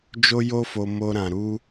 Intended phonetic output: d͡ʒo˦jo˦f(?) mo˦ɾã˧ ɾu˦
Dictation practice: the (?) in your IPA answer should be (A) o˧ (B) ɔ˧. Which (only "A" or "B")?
A